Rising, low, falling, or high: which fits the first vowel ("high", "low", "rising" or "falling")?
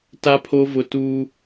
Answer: high